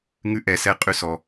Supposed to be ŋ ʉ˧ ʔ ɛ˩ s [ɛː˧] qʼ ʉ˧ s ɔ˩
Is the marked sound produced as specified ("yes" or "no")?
no